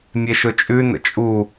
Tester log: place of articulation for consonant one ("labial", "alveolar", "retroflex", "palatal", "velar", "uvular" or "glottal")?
labial